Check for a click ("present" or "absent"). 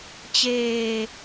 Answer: absent